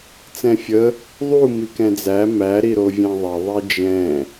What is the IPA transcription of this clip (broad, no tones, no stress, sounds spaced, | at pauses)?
t͡s ɛ̃ fʲ ə | ðˤ u m i k ɛ̃ d͡z æ m æ ɾ i ɾ o vʲ æ̃ ðˤ ɛ ðˤ i d͡ʒ ɛ̃